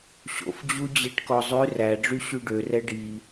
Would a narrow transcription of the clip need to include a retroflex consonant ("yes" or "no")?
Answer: yes